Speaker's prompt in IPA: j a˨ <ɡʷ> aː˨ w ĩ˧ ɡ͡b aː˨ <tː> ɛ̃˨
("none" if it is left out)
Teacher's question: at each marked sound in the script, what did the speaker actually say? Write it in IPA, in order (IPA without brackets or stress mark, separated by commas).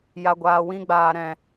ɡʷ, ɾ